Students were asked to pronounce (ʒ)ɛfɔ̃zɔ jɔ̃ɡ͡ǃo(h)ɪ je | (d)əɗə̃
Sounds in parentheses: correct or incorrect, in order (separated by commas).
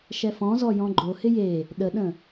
incorrect, correct, incorrect